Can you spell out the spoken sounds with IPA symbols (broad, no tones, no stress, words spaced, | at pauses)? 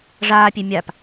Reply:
ʐaːpʲe mʲap